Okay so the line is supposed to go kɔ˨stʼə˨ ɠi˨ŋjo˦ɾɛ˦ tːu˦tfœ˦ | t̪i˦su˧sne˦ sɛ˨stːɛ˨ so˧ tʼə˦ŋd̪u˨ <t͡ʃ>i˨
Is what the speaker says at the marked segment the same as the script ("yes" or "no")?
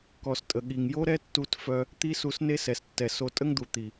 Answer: no